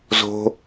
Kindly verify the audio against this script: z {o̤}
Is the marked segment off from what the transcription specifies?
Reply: no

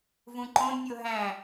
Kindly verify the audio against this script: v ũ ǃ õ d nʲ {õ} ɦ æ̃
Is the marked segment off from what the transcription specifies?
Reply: yes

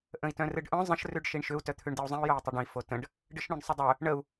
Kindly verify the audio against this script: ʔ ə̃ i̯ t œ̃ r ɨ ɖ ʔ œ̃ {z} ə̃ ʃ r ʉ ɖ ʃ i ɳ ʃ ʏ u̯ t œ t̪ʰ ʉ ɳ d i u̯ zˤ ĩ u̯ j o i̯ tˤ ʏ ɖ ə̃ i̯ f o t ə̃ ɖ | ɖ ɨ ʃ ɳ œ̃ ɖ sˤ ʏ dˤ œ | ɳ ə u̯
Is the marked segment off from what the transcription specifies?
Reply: yes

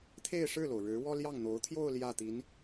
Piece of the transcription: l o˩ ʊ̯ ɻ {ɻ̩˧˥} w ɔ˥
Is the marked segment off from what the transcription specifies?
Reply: no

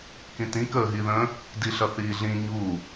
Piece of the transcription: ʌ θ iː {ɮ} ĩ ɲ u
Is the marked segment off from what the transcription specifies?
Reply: no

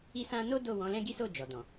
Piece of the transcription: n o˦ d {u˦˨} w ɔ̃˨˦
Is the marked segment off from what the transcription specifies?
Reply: yes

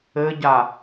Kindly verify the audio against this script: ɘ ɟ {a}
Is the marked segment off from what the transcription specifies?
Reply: no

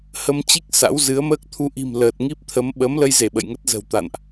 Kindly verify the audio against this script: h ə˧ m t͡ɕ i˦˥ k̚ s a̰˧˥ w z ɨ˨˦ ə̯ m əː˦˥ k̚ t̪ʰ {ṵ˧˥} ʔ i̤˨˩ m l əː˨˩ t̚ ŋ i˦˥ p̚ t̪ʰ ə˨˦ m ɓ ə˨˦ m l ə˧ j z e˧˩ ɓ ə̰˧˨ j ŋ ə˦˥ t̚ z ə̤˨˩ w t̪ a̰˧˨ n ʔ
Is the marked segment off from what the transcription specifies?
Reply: yes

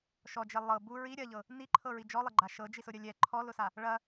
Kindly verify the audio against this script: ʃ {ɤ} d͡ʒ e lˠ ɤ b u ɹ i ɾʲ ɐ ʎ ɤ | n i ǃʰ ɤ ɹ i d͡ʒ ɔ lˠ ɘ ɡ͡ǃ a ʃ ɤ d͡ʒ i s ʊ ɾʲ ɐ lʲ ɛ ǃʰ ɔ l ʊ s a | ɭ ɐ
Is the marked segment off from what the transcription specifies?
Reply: yes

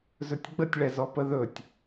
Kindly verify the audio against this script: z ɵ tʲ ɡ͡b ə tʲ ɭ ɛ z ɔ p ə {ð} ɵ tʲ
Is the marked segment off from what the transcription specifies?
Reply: no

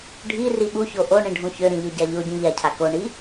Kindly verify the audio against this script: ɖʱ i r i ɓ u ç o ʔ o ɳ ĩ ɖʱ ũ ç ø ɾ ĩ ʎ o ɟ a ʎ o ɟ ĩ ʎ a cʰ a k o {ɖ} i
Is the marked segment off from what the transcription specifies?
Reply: yes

